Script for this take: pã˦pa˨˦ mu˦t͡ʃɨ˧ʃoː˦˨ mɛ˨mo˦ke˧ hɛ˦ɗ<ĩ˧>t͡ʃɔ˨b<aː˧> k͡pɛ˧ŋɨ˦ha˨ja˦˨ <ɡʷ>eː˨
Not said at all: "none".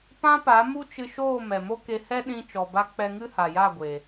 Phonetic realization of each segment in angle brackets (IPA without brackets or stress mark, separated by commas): ĩ˧, a˧, ɡʷ